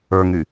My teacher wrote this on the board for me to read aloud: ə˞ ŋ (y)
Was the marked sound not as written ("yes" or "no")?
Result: no